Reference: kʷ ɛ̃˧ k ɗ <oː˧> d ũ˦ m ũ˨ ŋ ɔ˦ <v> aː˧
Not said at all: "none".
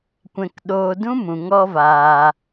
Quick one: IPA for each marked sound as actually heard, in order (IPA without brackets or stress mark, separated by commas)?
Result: oː˧, v